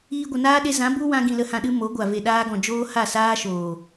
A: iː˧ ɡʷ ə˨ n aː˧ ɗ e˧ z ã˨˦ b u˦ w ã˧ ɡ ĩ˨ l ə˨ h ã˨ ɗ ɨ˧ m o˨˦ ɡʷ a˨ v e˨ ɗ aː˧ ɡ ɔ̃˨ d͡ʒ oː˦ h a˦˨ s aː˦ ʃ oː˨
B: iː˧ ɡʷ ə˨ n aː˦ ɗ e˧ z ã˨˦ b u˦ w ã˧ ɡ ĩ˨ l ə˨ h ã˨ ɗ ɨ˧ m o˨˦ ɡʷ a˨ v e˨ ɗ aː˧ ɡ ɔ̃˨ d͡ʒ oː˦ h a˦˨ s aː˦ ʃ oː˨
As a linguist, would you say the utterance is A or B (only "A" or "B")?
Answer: B